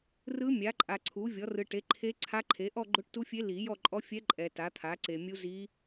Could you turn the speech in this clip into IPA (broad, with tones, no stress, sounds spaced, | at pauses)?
r ɯ˧˥ mʲ a˩˥ ǃʼ a˨ ǀʰ u˩˥ vʲ ɔ˩˥ r ɯ˨ ʈ e˩˥ ǃʰ e˧˥ ǀʰ a˧˥ ǃʰ e˩˥ ʔ ɔ˦˨ ɡ͡ǃ o˧˥ ʈ t u˧˥ fʲ e˧˥ l i˨˩˦ j ɔ˦˨ ǃʼ ɔ˧˥ fʲ ɛ˧˥ ǃʼ ɛ˨ t a˩˥ t̪ʰ a˩˥ ǀ e˨ mʲ u˧˥ z i˧˥